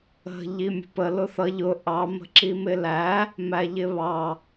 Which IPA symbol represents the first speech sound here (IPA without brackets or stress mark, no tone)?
ə̤